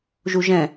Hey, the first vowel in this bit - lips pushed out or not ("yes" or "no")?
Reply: yes